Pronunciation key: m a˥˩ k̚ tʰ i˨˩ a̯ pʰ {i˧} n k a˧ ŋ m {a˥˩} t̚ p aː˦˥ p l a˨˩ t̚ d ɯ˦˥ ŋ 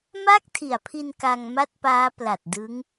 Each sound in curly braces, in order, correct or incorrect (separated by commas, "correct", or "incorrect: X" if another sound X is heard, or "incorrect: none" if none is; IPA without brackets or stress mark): correct, correct